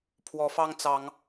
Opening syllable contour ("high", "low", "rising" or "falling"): rising